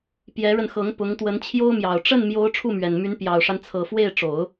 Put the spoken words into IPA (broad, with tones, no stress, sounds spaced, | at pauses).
p j ɛ˧˥ ɻ ə˧ n x ɤ˧˥ ŋ p ʊ˧˥ ŋ t̪ w ə˧˥ n t͡ɕʰ j o˥ ʊ̯ m j ɑ˨˩ ʊ̯ ʈ͡ʂ ə˥˩ n m j o˧˥ ʊ̯ ʈ͡ʂʰ u˥˩ m ɥ ɛ˨˩ n m y˧˥ n p j ɑ˨˩ ʊ̯ ʂ a˦ n t͡sʰ ɤ˨˩ f w e˥˩ ɪ̯ ʈ͡ʂ o˨˩˦ ʊ̯